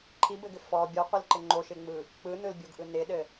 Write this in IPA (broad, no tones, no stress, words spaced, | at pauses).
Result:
ǃʰi bɘɡʏ fɔ bʲɔqʷilǃɪ ŋ͡ǃoʃɪŋ͡mɯ | k͡pɯnɯlbʲoɡʔɯ nɪɗɘ